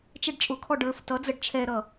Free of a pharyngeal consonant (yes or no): yes